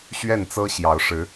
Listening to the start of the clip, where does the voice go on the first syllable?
falling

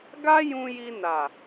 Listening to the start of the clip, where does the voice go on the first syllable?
high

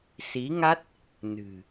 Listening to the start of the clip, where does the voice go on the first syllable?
rising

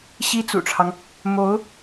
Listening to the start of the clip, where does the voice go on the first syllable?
high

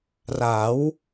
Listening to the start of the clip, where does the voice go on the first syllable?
rising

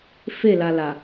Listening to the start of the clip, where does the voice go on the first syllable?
falling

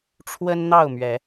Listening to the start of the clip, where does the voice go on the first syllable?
high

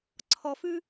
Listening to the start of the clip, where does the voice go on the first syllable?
low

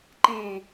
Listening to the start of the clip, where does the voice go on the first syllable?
falling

